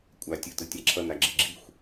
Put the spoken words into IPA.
kʷʼ a tʲ ɯ t ɯ tʲ a ǁʰ ʌ n a ɡ͡ǁ i ɡ͡ǁ i xʷ

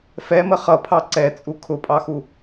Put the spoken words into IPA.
f ɛ m ə χ ʌ pʰ ɑ ǀ ɛ t͡sʼ u kʰ ʊ pʼ ɑ x u

